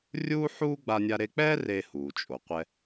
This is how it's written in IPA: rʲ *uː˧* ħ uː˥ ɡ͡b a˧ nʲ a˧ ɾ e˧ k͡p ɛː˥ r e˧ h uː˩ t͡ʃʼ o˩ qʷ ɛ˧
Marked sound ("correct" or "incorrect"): incorrect